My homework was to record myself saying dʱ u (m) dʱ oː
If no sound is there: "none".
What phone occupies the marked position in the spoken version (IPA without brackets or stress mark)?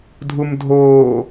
m